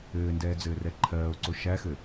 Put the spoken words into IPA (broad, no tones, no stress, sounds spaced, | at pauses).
ɘː n d ɛː d͡z ɘː r ɛ ǃʰ ɜː o̯ ǀ o ʃ æ x ɘ